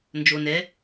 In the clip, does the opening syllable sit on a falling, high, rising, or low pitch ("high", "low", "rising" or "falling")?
low